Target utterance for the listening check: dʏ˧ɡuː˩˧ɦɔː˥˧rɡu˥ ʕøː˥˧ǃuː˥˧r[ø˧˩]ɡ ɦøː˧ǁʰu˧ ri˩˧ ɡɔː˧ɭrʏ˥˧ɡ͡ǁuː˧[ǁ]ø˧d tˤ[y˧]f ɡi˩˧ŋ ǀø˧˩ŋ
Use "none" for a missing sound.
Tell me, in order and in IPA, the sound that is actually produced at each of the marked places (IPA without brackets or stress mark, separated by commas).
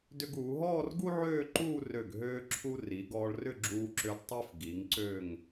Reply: ø˧˩, ǁ, y˧